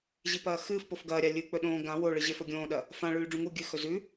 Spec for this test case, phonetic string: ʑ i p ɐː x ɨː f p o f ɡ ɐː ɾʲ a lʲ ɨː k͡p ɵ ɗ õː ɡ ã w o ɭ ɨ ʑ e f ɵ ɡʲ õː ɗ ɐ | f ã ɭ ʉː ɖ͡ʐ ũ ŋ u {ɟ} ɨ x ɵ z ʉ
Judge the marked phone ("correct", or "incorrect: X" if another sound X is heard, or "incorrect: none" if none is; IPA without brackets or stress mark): incorrect: ɡʲ